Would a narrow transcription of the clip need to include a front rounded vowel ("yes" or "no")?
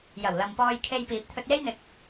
no